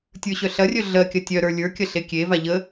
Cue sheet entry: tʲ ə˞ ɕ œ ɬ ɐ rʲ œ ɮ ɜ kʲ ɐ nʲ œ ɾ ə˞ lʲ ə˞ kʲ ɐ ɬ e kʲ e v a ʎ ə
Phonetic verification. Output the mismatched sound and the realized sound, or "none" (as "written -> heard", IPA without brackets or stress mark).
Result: nʲ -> tʲ